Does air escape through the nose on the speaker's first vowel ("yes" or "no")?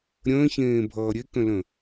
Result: yes